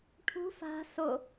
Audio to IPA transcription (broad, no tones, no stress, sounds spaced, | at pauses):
ʈʰ ṳ f a̤ s o